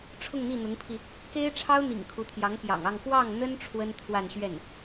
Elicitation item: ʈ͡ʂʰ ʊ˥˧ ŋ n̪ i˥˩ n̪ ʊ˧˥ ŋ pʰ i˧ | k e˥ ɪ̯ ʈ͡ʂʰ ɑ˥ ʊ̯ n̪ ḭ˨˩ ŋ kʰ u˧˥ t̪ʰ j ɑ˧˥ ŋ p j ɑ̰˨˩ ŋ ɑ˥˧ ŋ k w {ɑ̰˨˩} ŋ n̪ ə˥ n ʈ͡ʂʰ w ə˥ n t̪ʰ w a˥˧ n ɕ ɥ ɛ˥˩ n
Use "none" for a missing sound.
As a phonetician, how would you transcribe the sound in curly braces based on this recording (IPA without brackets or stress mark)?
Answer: ɑ˥˩